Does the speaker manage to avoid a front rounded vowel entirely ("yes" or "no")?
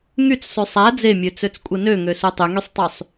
no